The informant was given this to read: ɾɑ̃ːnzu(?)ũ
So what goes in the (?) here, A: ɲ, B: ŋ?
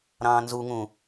B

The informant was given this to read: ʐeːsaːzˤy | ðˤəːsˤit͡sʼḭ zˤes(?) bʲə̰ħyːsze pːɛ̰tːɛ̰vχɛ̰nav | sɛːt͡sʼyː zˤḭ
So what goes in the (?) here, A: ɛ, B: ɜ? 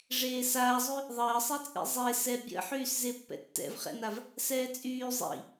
A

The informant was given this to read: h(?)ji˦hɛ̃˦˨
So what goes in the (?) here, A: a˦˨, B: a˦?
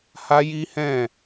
B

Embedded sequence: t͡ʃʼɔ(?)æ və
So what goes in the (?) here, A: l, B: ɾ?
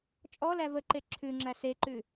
A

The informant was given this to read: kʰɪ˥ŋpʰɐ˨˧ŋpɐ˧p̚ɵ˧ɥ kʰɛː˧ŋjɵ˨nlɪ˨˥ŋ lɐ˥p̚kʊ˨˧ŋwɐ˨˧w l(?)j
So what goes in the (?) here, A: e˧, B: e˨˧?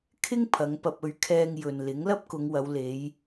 B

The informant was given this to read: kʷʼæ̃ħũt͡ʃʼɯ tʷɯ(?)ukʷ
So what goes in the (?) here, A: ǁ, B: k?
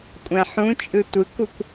B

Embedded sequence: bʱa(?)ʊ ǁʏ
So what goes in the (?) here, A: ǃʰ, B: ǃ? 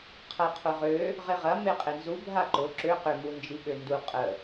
B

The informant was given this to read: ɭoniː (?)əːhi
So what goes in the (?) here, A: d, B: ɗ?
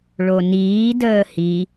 A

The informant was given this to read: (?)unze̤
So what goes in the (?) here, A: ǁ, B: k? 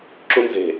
A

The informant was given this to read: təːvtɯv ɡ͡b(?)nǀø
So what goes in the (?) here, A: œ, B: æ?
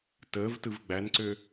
B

